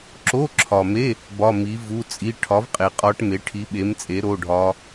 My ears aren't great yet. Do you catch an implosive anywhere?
yes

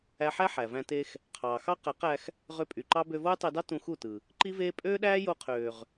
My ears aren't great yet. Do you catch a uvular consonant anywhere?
yes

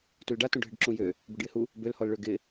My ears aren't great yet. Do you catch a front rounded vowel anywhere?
yes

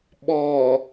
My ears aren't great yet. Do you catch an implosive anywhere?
yes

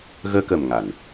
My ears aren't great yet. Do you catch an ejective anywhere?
no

